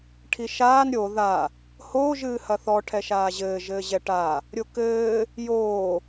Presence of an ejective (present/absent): absent